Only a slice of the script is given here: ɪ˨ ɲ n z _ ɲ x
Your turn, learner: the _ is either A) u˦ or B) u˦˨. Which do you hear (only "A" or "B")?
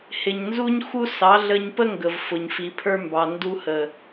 A